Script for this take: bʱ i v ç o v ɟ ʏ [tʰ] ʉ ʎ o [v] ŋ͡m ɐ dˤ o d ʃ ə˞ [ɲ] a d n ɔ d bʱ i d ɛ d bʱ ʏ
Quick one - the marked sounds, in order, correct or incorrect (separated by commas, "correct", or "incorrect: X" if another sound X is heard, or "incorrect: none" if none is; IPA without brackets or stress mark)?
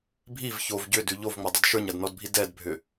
incorrect: d, correct, correct